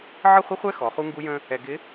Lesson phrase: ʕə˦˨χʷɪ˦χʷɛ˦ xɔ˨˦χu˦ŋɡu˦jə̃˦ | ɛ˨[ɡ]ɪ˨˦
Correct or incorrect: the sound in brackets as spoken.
correct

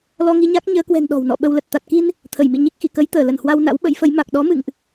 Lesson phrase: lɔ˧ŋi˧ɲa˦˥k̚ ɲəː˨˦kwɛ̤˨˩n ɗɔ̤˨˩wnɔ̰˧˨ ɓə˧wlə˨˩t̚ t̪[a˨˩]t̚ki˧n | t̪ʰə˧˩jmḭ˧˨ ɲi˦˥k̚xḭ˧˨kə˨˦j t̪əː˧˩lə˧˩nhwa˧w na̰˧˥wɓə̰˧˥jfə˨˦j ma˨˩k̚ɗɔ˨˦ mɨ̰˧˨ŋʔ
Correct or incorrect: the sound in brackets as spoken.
correct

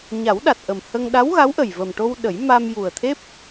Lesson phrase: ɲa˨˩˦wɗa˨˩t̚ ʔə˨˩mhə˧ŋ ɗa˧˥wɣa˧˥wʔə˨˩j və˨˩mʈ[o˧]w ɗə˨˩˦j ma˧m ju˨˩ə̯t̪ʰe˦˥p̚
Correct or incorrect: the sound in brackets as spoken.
correct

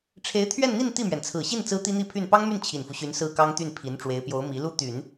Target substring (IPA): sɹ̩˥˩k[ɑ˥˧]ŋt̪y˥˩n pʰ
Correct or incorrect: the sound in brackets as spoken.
incorrect: ɑ˥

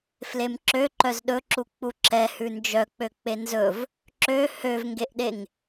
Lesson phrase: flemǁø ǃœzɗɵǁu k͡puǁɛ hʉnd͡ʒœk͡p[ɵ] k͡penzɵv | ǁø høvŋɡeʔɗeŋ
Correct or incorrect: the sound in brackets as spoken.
incorrect: ø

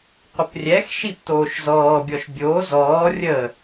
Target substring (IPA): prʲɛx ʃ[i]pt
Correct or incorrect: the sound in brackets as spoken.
correct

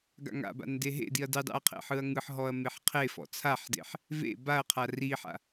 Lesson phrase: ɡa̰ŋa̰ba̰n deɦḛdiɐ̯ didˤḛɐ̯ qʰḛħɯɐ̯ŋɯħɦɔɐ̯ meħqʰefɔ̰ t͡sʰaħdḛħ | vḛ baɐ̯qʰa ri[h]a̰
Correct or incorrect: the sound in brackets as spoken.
incorrect: ħ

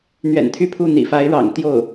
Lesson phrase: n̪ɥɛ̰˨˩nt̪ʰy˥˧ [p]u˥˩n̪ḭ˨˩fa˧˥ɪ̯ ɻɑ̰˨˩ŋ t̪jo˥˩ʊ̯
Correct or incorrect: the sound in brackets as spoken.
incorrect: pʰ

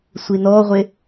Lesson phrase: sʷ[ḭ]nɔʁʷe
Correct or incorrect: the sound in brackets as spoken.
incorrect: i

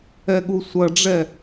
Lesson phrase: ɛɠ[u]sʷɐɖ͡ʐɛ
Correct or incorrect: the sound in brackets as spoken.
correct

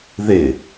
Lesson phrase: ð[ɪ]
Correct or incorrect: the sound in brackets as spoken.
correct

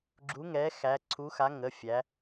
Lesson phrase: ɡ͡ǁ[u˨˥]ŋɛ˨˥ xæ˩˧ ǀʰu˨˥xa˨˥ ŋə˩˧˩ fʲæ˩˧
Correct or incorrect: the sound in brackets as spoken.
correct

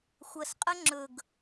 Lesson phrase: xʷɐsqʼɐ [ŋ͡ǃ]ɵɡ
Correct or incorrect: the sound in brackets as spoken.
incorrect: ŋ͡ǁ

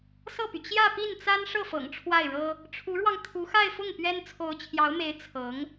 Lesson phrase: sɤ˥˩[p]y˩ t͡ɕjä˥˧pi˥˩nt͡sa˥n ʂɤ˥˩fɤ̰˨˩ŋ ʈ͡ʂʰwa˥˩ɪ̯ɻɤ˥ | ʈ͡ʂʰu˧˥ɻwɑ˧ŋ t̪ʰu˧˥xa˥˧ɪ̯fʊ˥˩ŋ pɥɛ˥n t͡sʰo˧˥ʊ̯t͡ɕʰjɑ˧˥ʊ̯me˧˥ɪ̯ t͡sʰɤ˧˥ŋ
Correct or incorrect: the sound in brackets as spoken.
correct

